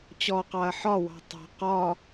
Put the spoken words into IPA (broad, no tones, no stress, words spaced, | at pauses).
t͡ɕɔqɑɐ̯ ħɒwɑ̤ tˤɑ̤ qɒ